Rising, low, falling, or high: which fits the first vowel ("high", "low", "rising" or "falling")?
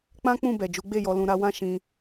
high